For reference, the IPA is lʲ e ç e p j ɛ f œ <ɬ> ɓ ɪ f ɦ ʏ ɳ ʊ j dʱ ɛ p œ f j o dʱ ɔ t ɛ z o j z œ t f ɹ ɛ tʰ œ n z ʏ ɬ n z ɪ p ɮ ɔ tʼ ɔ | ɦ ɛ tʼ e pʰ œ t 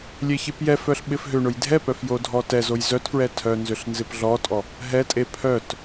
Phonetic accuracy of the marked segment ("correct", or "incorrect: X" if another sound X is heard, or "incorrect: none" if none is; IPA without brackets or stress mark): correct